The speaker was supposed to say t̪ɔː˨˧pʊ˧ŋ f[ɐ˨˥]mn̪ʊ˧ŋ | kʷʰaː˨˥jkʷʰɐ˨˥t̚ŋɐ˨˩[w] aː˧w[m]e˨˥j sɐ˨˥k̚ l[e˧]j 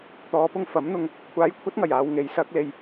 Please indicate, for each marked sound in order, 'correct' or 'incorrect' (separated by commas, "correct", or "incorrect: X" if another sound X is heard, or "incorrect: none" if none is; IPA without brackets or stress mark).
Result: correct, incorrect: j, incorrect: ŋ, correct